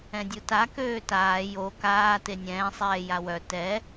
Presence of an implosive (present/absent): absent